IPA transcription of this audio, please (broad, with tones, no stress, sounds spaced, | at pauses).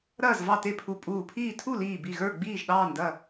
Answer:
ɾ ɐː˥˨ z v ɑ˥˨ t e˥˨ pʰ u˧˩ pʼ uː˧˩ pʰ iː˥˨ tʰ u˥˨ l iː˧˩ b i˧˩ ɣ ə˞˥˨ ɡ͡b iː˥˨ ʒ ɗ ɑː˥˨ n d ɐ˥˨